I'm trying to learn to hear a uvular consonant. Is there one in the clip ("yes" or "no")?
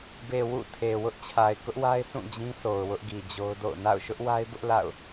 no